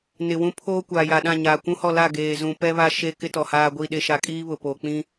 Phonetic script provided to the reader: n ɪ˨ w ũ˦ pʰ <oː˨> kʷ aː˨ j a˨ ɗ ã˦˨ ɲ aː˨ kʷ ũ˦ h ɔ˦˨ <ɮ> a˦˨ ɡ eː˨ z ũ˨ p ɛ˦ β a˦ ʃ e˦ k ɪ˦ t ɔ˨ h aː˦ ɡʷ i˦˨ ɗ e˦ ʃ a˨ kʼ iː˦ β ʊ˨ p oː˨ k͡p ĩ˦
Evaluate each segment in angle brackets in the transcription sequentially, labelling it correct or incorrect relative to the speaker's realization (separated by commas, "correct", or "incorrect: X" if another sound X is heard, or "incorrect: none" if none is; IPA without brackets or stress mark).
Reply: incorrect: oː˦, incorrect: l